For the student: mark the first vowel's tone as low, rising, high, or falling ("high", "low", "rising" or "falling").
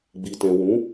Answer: low